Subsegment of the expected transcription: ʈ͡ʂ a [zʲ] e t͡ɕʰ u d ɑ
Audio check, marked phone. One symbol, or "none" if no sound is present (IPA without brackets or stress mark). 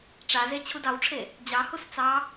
z